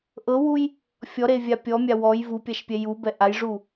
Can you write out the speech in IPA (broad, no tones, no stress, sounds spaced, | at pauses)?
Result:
ʔ ɤ w u j | fʲ ɔ ɾ e vʲ a pʲ ɔ mʲ a w ɔ j v u pʲ a ʃ pʲ ɛ j u b ɛ ʔ a j ʐ u